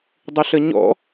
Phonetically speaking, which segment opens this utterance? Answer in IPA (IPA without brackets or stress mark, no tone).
dˤ